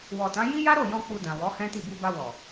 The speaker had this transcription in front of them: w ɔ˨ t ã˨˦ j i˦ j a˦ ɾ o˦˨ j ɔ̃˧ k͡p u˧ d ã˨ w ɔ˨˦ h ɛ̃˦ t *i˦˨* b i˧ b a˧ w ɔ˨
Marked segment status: correct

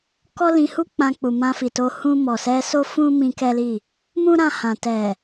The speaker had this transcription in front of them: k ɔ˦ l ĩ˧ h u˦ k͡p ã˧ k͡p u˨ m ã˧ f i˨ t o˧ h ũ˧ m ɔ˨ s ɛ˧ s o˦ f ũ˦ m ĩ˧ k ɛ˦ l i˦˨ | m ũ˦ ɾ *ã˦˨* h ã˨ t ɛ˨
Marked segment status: correct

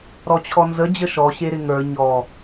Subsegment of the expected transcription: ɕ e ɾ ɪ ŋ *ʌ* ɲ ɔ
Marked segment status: incorrect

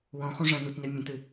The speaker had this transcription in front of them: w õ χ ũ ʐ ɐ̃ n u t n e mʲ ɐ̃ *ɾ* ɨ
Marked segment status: incorrect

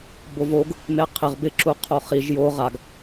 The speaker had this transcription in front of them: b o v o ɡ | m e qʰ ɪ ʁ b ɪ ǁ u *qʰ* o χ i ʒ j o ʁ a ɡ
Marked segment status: correct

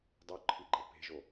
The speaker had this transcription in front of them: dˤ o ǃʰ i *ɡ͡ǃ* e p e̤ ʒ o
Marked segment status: correct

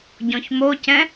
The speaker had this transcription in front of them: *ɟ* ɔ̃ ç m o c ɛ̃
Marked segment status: correct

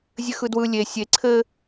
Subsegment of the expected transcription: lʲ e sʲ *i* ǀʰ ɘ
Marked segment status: incorrect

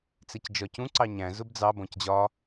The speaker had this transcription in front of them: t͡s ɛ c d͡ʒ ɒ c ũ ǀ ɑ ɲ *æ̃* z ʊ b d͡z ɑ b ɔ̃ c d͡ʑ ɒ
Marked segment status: correct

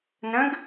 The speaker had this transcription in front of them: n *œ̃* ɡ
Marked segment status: incorrect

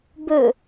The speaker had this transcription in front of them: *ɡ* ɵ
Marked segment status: incorrect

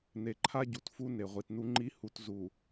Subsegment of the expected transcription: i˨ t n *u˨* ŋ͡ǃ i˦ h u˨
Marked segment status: incorrect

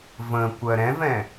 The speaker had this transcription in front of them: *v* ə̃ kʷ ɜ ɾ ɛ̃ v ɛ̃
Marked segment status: correct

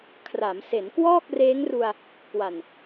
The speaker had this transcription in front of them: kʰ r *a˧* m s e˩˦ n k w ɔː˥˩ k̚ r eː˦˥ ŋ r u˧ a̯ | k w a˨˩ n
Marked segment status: incorrect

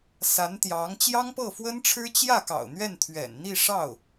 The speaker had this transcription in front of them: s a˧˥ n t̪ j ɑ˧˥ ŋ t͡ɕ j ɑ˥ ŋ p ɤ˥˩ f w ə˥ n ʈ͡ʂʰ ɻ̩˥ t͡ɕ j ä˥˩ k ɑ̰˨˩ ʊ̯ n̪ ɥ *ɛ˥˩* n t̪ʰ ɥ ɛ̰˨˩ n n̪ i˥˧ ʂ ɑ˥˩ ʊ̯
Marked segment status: correct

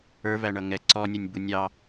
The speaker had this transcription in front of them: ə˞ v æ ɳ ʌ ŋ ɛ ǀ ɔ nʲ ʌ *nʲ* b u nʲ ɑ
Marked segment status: correct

